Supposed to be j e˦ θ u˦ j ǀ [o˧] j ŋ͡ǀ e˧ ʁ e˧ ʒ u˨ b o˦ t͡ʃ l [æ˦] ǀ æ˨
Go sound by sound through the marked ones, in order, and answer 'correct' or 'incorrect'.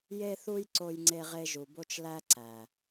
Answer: correct, correct

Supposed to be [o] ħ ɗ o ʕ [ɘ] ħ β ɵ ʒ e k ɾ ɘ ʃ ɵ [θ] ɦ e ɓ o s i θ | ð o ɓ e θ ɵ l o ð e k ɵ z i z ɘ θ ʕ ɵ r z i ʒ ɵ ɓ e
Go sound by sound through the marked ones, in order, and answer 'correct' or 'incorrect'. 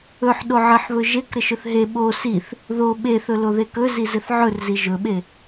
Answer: incorrect, correct, correct

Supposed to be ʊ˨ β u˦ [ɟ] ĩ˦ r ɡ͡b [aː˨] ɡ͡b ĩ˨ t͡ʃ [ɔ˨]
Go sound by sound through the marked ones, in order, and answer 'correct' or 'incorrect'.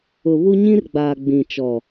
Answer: incorrect, correct, correct

